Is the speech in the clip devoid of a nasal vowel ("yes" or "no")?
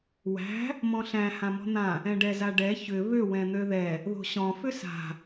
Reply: no